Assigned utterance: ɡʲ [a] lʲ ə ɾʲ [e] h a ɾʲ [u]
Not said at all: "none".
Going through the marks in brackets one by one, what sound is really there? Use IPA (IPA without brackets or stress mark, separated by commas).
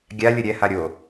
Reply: a, ɛ, o